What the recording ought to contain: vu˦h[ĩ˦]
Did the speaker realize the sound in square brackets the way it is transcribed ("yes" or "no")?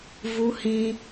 yes